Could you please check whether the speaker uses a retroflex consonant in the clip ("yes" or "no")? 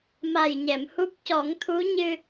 no